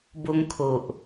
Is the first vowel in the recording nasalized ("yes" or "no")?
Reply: no